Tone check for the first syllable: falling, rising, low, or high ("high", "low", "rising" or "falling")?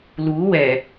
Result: rising